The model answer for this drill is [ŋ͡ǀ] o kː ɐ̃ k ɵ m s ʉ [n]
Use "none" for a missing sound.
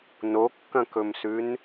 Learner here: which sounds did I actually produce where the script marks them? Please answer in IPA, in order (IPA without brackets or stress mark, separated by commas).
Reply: n, n